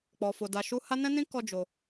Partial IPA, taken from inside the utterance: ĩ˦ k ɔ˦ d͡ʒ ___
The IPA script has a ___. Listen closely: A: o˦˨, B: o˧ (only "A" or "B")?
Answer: B